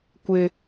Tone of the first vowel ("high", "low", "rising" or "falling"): high